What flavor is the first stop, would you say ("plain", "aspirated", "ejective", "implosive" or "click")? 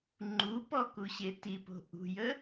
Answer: click